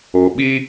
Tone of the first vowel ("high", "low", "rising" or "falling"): low